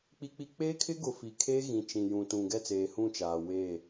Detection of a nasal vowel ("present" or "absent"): present